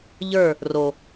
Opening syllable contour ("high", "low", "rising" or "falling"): falling